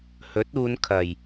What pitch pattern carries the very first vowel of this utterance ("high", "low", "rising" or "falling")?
rising